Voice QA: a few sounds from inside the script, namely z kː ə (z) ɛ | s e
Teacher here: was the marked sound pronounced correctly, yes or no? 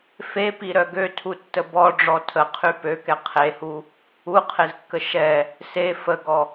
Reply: no